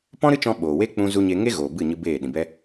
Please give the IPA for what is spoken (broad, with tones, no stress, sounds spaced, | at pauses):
p ɔ̃˦ ɾ ɨ˦ t͡ʃ ɔ̃˧ ɓ oː˨ w e˦ k͡p ũ˧ z u˧ ɲ e˧ ŋ e˦ ɣ oː˨ b ɨ˦˨ ɲ ɨ˧ b eː˦˨ ɗ ĩ˨ b ɛ˦